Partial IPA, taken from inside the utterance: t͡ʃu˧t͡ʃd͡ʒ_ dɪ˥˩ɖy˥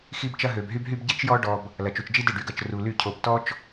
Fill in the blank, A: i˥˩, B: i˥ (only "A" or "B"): B